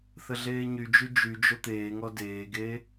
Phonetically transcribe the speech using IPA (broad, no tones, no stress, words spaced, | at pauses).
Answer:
θəɮeːɲyd͡ʒy d͡ʒyd͡ʒo t̪eːŋɔ deːɡe